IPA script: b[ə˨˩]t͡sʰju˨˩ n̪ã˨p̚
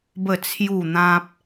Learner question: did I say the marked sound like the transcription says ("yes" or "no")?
yes